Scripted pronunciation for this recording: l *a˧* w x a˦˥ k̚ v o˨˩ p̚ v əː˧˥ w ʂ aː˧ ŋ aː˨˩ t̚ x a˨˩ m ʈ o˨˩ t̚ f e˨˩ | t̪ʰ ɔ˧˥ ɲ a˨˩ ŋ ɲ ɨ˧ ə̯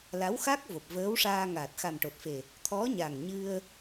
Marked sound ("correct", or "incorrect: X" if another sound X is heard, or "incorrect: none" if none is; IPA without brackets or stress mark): incorrect: a˧˥